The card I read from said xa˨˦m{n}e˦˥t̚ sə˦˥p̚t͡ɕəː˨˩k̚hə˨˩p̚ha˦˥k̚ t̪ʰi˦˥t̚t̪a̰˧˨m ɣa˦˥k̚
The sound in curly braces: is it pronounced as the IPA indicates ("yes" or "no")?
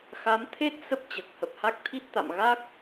no